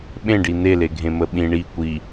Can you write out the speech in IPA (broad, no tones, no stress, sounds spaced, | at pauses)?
ɓ ẽ ɖ i n̪ e l e ɡʱ ẽ m ə ɓ ĩ ɳ i kʷ i